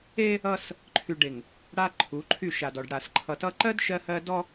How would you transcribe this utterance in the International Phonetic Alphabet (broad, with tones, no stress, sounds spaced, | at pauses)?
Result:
e˦ | ʌ˦ s | ǃʰ y˨ ɖ e˨ ŋ | ɽ a˦ ǃʰ u˨˦ ǃʰ y˦˨ ʃ a˨ d ɔ˨ ɖ ɽ a˨ s ǃʰ ʌ˨ t ʌ˦ ǃ ɜ˦ d ʃ ɜ˦ h ɜ˦ d ɔ˦